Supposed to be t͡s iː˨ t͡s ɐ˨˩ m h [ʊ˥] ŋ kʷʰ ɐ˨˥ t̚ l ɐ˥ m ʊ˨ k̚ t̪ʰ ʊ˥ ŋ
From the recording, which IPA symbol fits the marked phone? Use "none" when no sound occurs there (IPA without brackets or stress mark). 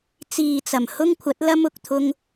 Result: ʊ˥